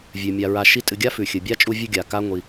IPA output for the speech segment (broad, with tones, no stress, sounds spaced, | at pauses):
vʲ ʉ˩ mʲ a˨ ɹ a˨ ʃ i˦ tʼ ɨ˨ ɡʲ a˥ f ʉ˩ xʲ ɨ˩ bʲ a˥ t͡ʃʼ u˦ vʲ ɨ˦ ɡʲ a˩ k a˥ ŋʷ i˨